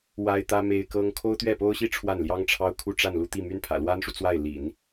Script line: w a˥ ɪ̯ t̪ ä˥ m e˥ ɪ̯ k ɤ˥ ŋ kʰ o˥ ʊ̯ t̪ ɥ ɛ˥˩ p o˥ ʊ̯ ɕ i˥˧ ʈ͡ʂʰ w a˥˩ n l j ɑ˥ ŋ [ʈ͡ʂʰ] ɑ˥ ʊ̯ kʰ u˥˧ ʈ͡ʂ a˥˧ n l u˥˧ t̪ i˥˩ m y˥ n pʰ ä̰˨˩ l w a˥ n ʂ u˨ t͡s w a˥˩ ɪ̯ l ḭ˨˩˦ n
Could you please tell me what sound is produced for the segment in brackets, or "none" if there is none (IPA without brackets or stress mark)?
ʈ͡ʂʰ